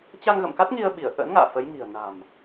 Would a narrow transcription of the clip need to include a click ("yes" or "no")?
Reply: no